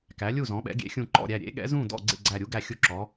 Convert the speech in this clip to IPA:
kæ˩˥lʲu˥˩zɔ̃˩˥ɓɛ̰˩˥ ɡʲḛ˩˥xʲũ˧˩ǃɔ̰˥˩ɾʲæ˧˩ ɾʲḛ˩˥ɠɛ̰˩˥ zũ˥˩dɔ̰˥˩ ɡ͡ǀḛ˥˩ɡ͡ǀæ˧˩ɾʲu˩˥ ɡæ˥˩xʲu˥˩ǁɔ˩˥

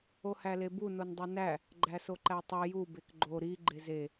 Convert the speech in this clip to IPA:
ohælebu nondˤunæ | ɡ͡ǃæsoǃætˤi ju bekɡ͡ǃo ɾi ɡ͡ǃeze

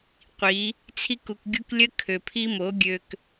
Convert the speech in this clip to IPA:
qʷi˨˦ | t͡sʰi˧ku˨kɡʲu˧k lʲə˦ kʰø˨pʰi˦mo˨˦ ɡʲø˧k

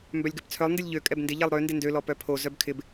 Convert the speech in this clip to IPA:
mbœlʲɡœpt͡sʰœlˠ ndɪlʲʎø kʼɛbndɪ ʎɛlˠɾø ndɪndø lɔpœpʰo zœbkʰɪb

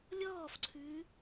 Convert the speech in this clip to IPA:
lʲɔːfǀʰʉː

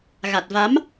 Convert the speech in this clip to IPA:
ɣa˨˩t̚va˨˦m

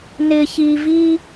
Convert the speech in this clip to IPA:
nɪ˦çi˦vi˥

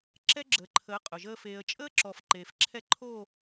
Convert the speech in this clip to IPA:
ǁɛ˦ɡ͡ǁəː˨ǃʰəː˨˦ qʼʊ˨ʒəː˦ feː˨ə̯t͡ʃʼəː˦ǁɔ˨f ǃeː˨fǁʰɛ˦ǃʰo˦˨

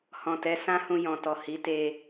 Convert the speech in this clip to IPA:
hɔ̃˨tɛ˨˦ sã˦hũ˧ jɔ̃˨tɔ˨ hi˨˦te˧

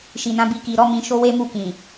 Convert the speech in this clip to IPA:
ʃi˨nã˨˦bi˧ ki˨ɾɔ˨˦ mĩ˧ʃo˦we˦mu˦˨ kĩ˨

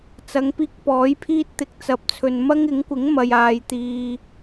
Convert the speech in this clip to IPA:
t͡sɐ˨˧ŋpiː˧k̚ pɔː˨˥jpʰiː˥t̚t̪ɪ˨k̚ t͡sɐ˨p̚t͡sʰɵ˨n mɐ˥ŋɪ˨˥ŋkʷɪ˨˥ŋ mɐ˨jaː˨jt̪iː˨

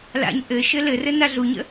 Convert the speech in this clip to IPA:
la̰ɲ ʔɘʃɘ lɘrɘ naɮuɲə̰

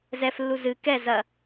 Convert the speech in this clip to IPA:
zɛflːu zɨ kɛ zɐ

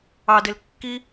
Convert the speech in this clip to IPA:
ɑdel kːi

